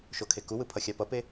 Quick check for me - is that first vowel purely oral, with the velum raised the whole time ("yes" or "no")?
yes